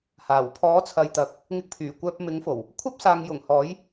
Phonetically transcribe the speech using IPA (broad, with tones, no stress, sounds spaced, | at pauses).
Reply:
h aː˨˩ w pʰ ɔː˨˥ t͡sʰ ɐ˨ j t̪ ɐ˨ k̚ | ŋ ɪ˧ k̚ pʰ yː˨˩ kʷ œː˧ p̚ m ɪ˨˥ ŋ f o˨˩ w | kʷʰ ɐ˥ p̚ s aː˨ ŋ j ʊ˨˩ ŋ h ɔː˨˥ j